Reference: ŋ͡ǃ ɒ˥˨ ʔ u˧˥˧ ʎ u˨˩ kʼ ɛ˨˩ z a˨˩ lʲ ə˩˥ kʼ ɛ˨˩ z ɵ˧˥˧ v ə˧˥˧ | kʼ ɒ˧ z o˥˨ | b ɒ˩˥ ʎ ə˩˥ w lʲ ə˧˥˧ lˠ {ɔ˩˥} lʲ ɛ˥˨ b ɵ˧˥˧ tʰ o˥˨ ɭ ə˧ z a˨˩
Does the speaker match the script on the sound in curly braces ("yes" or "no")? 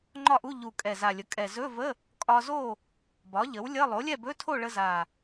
no